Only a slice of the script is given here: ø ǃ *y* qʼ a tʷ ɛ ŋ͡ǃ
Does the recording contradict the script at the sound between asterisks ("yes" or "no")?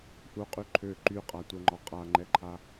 no